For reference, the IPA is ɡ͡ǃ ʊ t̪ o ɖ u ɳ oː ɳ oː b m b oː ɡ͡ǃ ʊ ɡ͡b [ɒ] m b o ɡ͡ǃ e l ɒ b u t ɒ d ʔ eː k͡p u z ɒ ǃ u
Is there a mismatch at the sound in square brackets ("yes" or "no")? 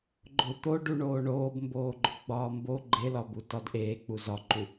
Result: yes